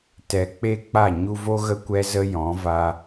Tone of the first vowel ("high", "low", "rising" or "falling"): low